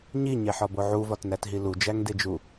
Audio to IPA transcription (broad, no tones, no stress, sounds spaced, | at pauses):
ɲ i ɲ e ħ ɒ b o ʕ u v ɒ t n æ t ɦ i l u d͡ʒ æ ŋ d e d͡ʒ u